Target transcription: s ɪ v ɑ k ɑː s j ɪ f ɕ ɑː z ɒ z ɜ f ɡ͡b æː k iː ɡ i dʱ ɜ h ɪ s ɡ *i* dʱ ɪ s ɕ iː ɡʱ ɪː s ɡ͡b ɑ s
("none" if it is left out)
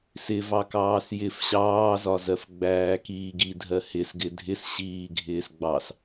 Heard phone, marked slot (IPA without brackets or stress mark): ɪ